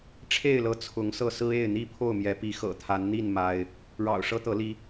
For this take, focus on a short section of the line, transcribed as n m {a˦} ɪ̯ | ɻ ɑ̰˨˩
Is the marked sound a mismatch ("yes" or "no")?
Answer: no